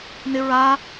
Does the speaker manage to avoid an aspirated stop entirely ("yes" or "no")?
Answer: yes